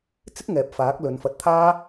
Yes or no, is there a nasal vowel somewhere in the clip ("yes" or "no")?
no